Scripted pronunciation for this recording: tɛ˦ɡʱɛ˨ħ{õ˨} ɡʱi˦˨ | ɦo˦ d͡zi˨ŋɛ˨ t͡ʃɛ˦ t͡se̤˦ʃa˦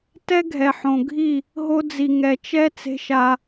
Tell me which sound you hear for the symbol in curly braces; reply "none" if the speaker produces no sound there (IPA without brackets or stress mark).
õ˨